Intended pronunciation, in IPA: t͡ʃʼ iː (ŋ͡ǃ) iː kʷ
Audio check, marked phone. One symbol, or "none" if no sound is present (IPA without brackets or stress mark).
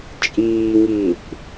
ŋ